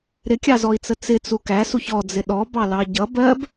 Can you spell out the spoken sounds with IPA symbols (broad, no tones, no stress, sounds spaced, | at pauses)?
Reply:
ɾ ɪ kʲ ɑ z ɔ i̯ t͡s ə t͡s ɪ t͡s u k æ s u ç ɔ d͡z ɪ ɗ ɔ b ɑ l ɑ ɟ ʌ b ɜ b